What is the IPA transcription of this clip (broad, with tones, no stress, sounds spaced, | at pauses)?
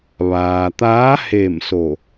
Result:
ʋ aː˩ t̪ aː˧˥ h e˧˩ m s o˧˩